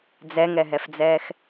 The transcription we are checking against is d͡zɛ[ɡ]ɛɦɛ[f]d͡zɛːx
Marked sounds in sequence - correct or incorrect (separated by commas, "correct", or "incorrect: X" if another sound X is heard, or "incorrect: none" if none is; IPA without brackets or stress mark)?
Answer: incorrect: ŋ, correct